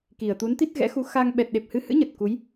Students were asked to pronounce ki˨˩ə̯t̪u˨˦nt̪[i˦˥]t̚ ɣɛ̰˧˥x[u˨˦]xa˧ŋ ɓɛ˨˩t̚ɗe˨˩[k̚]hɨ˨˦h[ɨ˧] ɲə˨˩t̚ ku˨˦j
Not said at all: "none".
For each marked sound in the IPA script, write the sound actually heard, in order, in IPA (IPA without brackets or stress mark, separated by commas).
i˦˥, u˨˦, p̚, ɨ̰˧˥